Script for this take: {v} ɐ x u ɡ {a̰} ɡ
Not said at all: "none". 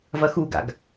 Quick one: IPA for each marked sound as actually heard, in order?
v, a̰

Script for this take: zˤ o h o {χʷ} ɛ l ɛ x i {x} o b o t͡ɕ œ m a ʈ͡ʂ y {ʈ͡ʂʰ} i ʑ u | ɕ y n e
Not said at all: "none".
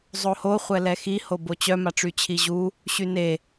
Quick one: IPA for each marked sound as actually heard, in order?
χʷ, h, t͡ɕʰ

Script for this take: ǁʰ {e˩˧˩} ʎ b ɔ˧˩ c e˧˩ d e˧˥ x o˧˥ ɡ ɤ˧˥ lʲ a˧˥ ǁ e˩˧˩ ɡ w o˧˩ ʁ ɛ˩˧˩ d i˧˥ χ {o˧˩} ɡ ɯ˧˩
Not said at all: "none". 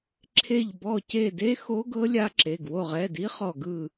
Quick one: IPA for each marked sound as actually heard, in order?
e˧˩, ɔ˧˩

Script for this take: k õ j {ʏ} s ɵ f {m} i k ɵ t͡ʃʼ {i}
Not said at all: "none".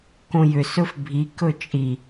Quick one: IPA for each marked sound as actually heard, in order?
ʏ, bʱ, i

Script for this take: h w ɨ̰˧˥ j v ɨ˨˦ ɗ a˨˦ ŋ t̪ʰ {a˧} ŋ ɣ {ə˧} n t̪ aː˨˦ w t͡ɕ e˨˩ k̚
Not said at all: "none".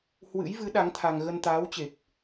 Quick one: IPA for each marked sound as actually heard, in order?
a˧, ə˧

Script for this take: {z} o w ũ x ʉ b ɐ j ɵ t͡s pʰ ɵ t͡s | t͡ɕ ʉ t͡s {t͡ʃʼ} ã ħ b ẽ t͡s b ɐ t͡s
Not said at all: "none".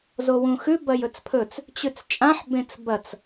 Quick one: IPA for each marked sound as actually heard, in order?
z, t͡ʃʼ

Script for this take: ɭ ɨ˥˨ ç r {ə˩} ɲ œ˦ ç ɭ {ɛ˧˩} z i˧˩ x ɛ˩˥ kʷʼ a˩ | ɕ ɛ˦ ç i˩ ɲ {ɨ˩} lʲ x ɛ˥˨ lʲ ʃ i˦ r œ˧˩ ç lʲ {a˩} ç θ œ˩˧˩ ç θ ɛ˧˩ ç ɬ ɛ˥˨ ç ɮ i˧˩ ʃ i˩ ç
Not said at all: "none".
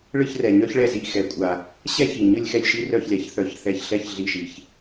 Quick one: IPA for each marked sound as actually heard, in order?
ɛ˩, ɛ˧˩, ɨ˥˨, a˩˥

